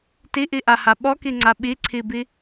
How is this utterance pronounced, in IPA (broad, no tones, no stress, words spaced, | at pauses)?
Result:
tiʔiʔaha ɓɔkiŋ͡ǀa ɓiǀʰibi